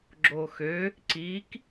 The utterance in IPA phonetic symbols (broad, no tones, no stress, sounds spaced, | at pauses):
ɡ͡ǁ o x ø | ǀ i k